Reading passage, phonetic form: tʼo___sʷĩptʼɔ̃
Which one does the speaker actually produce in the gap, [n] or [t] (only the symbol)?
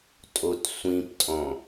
t